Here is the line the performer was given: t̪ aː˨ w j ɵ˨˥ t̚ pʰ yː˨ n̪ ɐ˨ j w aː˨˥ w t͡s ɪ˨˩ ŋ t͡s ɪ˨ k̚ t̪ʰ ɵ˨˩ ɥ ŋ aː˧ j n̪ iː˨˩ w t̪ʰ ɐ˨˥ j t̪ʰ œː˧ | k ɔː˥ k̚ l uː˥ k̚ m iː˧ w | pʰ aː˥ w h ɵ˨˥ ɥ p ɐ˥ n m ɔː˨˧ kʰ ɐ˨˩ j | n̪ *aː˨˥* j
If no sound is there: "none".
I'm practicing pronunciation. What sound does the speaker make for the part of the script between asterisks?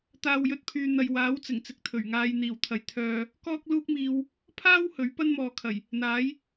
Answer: aː˨˥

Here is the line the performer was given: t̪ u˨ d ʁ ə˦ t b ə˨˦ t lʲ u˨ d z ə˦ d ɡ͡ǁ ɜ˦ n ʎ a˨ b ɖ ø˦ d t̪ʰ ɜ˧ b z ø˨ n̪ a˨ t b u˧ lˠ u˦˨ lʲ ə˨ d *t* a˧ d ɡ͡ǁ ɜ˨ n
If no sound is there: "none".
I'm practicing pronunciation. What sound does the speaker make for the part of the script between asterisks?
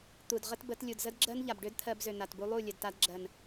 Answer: t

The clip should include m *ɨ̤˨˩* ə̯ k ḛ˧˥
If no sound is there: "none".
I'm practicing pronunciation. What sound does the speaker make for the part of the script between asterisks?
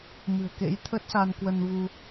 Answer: ɨ̤˨˩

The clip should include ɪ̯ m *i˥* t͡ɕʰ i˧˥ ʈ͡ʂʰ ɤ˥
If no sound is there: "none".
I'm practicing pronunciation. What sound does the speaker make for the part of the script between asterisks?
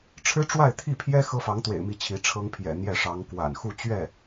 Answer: i˥˩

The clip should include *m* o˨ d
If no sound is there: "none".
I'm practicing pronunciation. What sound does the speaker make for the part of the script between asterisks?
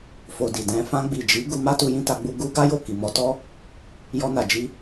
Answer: f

